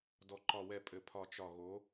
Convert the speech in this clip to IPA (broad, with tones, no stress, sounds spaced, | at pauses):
d ɔ˨ ǃ ɒ˨ w ɛ˨ pʼ ɘ˨ pʰ ɒ˨ t͡ʃ ɒ˨ ɣ o˨˦